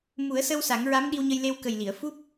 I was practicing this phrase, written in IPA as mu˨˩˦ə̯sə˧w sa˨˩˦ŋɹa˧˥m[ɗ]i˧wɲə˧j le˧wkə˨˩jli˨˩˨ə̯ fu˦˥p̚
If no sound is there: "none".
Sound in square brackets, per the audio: ɗ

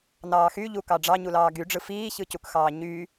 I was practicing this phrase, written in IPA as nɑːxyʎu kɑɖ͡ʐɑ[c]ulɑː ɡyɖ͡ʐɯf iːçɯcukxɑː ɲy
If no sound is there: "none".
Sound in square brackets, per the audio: ɲ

